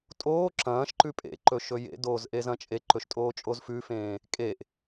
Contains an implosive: no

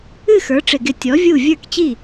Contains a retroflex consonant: yes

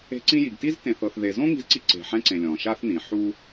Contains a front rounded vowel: no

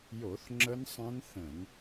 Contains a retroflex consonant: no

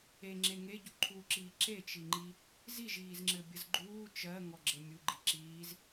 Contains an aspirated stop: yes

